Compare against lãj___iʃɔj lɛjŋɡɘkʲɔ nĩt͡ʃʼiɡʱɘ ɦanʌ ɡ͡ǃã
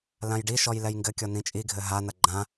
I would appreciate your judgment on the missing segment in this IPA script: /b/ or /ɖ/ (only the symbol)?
ɖ